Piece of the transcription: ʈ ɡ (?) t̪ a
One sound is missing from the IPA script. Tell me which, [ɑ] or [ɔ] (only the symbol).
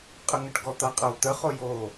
ɔ